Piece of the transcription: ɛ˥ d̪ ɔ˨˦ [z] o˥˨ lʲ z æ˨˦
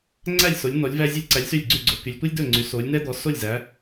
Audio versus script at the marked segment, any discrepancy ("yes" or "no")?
yes